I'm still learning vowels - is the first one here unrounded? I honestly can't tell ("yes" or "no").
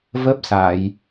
yes